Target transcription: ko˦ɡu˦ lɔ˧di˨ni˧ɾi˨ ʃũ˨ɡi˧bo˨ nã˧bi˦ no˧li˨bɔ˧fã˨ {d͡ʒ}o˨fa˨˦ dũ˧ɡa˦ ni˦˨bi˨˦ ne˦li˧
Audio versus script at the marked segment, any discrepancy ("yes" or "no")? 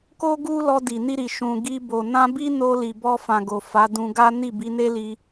yes